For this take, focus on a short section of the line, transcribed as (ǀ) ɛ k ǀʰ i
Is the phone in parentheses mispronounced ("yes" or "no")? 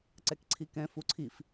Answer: no